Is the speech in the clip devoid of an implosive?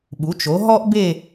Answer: no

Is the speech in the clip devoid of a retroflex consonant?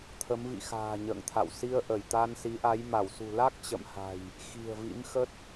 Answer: yes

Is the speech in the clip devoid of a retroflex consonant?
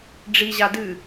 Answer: no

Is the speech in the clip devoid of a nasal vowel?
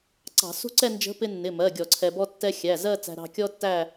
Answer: yes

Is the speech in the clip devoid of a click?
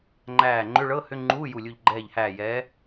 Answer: no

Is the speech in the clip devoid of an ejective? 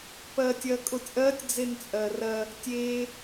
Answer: no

